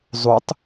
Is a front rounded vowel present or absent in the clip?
absent